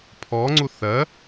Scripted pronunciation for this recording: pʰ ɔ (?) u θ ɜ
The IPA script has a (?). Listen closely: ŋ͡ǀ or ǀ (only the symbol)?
ŋ͡ǀ